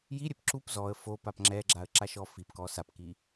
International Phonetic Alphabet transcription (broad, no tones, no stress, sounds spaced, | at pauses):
j i ɾʲ ɛ p ǁ u p z ɔ ə̯ f o p a p ŋ͡ǁ ɛ ɡ͡ǁ a ə̯ ǁ a ʃ ɔ f i p k ɔ s a p k i